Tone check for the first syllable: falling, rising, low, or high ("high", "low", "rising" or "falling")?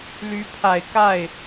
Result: rising